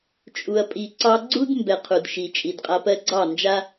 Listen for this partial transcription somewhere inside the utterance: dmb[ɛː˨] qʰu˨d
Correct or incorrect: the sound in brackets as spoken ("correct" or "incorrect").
incorrect